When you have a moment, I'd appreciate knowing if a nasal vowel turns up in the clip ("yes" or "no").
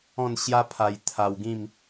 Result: yes